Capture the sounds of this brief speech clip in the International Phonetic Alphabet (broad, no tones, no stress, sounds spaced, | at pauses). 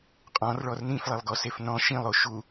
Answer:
qʼ ɔ̃ r ɭ ɔ r n ĩ f lˠ e lˠ ɡ ɔ s e f n ɔ̃ ʃ ĩ lˠ o ʃ u